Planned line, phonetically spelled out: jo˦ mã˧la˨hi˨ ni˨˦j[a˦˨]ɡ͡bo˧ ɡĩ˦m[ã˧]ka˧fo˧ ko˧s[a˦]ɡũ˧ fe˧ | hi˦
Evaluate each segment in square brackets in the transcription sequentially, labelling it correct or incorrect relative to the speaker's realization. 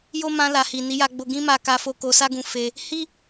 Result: incorrect: a˧, incorrect: a˧, correct

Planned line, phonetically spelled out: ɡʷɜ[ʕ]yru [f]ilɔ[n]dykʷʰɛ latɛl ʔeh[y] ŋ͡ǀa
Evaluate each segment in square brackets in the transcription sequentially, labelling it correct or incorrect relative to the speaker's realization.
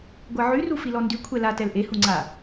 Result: correct, correct, correct, incorrect: u

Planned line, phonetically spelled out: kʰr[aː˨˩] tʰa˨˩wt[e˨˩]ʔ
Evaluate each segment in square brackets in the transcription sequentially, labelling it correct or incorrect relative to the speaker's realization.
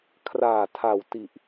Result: correct, incorrect: i˨˩

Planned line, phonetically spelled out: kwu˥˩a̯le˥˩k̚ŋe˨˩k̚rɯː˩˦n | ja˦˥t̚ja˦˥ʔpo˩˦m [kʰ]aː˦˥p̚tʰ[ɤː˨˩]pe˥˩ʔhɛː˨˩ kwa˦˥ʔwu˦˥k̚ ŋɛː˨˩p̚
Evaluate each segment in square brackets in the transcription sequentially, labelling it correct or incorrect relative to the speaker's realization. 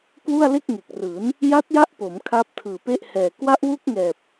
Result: correct, incorrect: ɯː˨˩

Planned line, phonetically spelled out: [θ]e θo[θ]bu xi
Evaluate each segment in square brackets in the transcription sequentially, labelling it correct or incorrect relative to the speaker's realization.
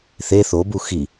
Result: correct, incorrect: none

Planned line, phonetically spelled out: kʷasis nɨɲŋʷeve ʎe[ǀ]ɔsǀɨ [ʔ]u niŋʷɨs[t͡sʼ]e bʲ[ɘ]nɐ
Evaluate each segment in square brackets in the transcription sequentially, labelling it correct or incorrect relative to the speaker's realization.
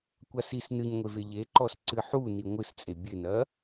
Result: incorrect: ǃ, incorrect: ħ, correct, correct

